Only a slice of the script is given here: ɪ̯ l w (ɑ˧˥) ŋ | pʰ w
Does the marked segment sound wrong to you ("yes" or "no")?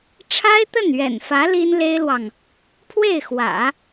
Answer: yes